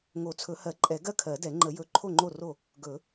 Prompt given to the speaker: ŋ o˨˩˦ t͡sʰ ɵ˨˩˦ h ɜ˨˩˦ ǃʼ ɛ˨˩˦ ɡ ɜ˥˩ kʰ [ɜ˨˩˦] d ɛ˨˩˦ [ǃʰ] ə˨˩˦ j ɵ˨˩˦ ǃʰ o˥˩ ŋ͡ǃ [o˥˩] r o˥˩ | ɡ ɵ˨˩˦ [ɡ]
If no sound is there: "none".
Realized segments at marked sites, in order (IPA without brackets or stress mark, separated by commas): ɜ˨˩˦, ŋ͡ǃ, o˥˩, none